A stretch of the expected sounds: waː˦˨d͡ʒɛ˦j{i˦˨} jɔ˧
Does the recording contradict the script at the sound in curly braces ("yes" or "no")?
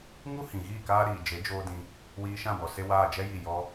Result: no